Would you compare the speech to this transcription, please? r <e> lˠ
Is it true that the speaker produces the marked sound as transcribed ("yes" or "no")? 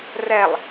no